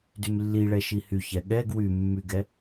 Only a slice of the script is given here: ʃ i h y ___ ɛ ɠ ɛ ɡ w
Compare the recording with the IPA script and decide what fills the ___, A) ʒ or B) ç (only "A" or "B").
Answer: B